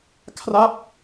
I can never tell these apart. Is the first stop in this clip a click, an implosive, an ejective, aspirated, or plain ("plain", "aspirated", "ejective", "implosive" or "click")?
aspirated